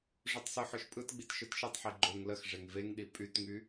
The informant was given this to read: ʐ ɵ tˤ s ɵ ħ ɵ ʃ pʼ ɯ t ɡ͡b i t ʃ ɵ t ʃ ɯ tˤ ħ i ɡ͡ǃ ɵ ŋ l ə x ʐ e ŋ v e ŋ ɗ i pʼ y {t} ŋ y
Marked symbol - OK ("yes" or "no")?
yes